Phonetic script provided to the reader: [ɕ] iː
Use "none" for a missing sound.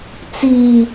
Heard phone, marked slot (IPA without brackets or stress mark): t͡s